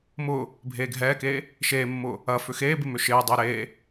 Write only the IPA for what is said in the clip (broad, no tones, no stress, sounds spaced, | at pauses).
m ʊː | bʱ eː ɡʱ ɛː k eː | ʃ eː mː ʊː | ɐ f ʏ x eː b ɪ m ʏ ʃ ɪː dˤ ɪː ɾ eː